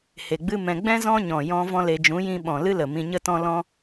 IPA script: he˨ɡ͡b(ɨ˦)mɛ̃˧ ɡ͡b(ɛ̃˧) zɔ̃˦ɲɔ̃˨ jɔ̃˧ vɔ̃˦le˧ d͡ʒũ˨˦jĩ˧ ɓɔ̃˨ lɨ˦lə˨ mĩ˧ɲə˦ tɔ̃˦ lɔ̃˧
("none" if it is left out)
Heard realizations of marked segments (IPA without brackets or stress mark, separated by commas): ɨ˦, ɛ̃˦